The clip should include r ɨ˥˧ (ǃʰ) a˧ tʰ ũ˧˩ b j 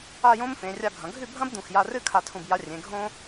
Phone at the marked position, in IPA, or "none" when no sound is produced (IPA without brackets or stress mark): kʰ